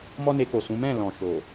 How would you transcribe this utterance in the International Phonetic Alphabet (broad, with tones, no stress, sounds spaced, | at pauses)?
m ɔ˦ n e˧ k o˨ s ũ˨˦ m ɛ̃˦˨ l ɔ̃˨ ʃ o˨